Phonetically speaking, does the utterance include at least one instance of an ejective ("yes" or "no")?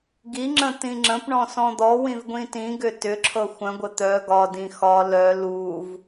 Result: no